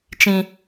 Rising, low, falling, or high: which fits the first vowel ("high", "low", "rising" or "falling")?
high